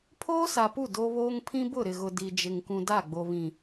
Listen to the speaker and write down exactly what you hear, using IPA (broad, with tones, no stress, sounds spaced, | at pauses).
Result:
pʰ oː˦ s a˨ p u˦˨ d o˦ β oː˦ ŋ pʰ ĩ˦ b ʊ˦˨ ɾ ɪ˨ ɣ ʊ˨ d i˨ d͡ʒ ɪ˨ ŋ k ũ˨ d a˦˨ ɡ͡b o˨ β ĩ˨